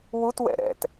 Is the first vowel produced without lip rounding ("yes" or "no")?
no